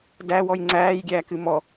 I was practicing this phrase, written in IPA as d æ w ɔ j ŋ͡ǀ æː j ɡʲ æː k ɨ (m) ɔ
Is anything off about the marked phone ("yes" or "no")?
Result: no